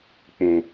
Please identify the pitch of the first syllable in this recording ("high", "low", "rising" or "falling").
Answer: low